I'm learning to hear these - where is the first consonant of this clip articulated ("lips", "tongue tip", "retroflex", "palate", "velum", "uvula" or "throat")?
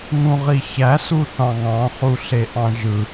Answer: velum